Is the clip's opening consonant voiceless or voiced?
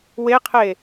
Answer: voiced